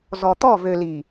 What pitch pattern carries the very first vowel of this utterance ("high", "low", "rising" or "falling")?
low